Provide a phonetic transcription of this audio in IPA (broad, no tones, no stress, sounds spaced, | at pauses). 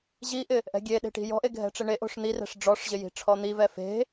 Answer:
ʑ i ʔ ɪ | ʔ ɛ̤ ɡʲ e ɗ e̤ ʈ i̤ j ɔ̤ ʔ e ɡʱ ɛ̤ ʈ͡ʂ ɪ ɳ e ʔ o̤ ʂ n̪ i r ɛ̤ ʂ ɖ͡ʐ ɔ ʂ ʑ ɪ j i̤ ʈ͡ʂʰ ɔ n̪ i v ɛ f e̤